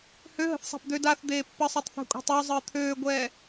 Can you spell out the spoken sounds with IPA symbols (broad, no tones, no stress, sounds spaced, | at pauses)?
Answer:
h ø ɦ ə̤ θ sˤ a̤ p d̪ ø d a θ d̪ eː pː ə sˤ o tˤ θ ɛ̤ kʷʼ a̤ tˤ o zˤ əː t̪ʰ øː ɡʷ ɛː